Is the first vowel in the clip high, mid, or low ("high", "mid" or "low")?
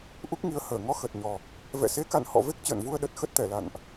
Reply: high